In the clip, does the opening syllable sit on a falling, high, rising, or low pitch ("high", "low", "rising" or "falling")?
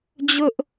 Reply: high